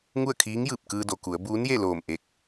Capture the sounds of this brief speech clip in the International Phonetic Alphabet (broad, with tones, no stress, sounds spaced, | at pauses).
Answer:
ŋ u˥˨ ə̯ kʰ iː˧˥ ŋ j ɯː˧˩ p̚ k ɯː˧ d o˩ k u˩˧ ə̯ b uː˧˥ n j e˥˨ l oː˧˩ m ʔ e˧˩ k̚